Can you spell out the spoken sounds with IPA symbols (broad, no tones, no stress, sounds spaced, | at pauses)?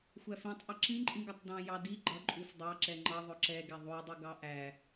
xʷ æ f ĩ tˤ ʔ ʌ ǁ ĩ ǃʼ ĩ ɡ ɜ tˤ d ɑ̃ j ɑ d i ɡ͡ǃ ʌ ǃʼ u f dˤ ɑ ǁ ɛ ŋ͡ǃ ʌ ðˤ ʊ ǁ ɛ ɡ ɛ ðˤ u dˤ u ɡ ɑ ʔ æ